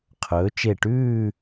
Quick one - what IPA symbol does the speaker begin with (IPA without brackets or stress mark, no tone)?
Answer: qʰ